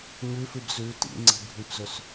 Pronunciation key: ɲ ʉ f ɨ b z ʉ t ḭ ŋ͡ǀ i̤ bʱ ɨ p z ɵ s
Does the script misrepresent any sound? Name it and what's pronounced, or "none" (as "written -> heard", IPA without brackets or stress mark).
none